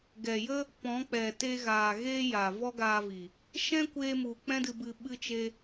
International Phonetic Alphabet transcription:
ɡ ɛ˨ j ə˦ | p ɔ̃˨˦ k͡p ɛ˨ t e˧ ɣ aː˨ ɣ eː˦ j a˨ v ɔ˦ ɡ aː˧ v i˨ | ʃ ɛ̃˦ kʷ eː˧ m u˨ k͡p ɛ̃˦ d ɨ˧ b ɨ˧ ɓ ɨ˦ t͡ʃ e˦

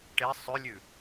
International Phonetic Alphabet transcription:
ʈ e sˤ ʉ lʲ ʉ

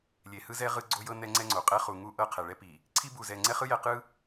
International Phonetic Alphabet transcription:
lʲ e˨ h ɯ˦ z ɛ˦ ʁ ɯ˦ ɡ͡ǀ o˦ j ɤ˦ n ɛ˦ ŋ͡ǀ ɛ˦ ŋ͡ǀ o˨ qʼ ɛ˦ χ u˨ ŋ u˦ ʔ ɤ˦˨ qʰ ɛ˨ ɭ ɛ˦ p i˨ | ǀʰ i˦ b u˨ z ɛ˨ ŋ͡ǀ ɛ˦ χ ɯ˦ j ɛ˨ q ɯ˦

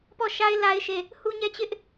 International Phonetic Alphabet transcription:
p ɔ˦˨ ʃ a˦ ɪ̯ l a˦ ɪ̯ ʃ e˦˨ | h u˦ ɲ ɛ˦ t͡ɕ ɪ˦ ʔ

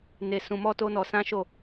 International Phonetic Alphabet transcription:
n e˧ s ũ˧ m ɔ˦ t o˦ n ɔ˧ s ã˦ ʃ o˦˨

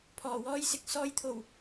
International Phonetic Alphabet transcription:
pʰ ɔː˨˩ w ɔː˥ j s ɪ˨ k̚ s ɔː˧ j t̪ʰ o˨˩ w

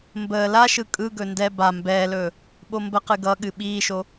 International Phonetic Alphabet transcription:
m b əː l a ʃ ɯ kʼ ɯ ɡ ɵ n d ɛ b a m b ɛː l ɵː | ɓ o m b ə q ɨ ɡ ʌ ɠ ɨ ɓ iː ʃ o

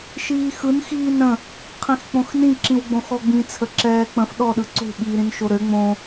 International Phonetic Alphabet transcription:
ʃ iː x ɯ n x iː n ɾ ə̃ | qʰ ĩ x k͡p õ x n ĩ ǁ ĩ w ɡ͡b õ x ɔ ɡ͡b ĩ t͡sʰ ə ǁ ɛː k͡p ə̃ f ɗ ɔ ɗ ɯ ǀ o̤ ɓ iː ɾ ĩ n ʃ o ɾ ø ŋ͡m õ

